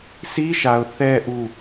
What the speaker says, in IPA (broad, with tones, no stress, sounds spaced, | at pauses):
s i˦ ʃ a˨ ʊ̯ θ ɛ˨ ʔ u˦˨